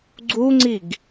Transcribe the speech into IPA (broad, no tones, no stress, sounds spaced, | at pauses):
ɡ͡ǀ u ŋ͡ǀ i ɡ